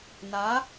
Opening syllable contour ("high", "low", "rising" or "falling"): rising